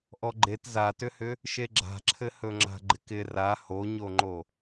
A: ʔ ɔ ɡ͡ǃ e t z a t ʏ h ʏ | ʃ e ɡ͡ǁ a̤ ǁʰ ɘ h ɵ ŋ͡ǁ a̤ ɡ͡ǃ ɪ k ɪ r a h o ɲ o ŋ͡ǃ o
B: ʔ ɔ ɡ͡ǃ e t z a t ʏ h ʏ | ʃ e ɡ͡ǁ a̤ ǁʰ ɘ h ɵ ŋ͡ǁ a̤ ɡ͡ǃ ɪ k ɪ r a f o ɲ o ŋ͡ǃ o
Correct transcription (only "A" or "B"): A